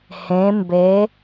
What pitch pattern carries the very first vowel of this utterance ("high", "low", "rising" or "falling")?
rising